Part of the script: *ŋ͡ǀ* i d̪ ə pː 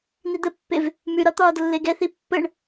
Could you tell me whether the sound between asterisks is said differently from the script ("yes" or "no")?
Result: yes